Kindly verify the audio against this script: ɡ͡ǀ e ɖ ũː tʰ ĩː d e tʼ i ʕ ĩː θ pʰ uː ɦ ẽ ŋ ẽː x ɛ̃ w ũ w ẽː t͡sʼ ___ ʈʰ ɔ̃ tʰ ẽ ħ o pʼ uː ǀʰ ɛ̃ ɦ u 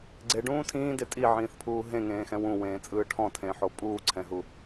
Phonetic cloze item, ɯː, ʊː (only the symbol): ɯː